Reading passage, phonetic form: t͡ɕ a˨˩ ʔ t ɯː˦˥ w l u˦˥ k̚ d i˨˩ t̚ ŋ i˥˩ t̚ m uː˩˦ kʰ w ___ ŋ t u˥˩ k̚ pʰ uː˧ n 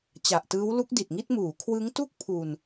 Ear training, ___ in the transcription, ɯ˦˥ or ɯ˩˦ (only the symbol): ɯ˦˥